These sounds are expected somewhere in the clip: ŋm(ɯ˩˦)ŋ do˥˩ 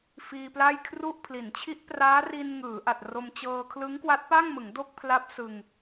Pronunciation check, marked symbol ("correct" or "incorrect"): correct